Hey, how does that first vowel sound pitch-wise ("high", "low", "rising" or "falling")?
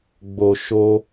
low